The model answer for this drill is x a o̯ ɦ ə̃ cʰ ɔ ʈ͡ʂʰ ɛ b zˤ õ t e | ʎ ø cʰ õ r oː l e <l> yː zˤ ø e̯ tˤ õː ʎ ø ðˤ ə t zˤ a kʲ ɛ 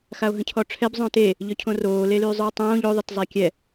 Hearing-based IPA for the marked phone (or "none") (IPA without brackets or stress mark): l